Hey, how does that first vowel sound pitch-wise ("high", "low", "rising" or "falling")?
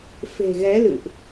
low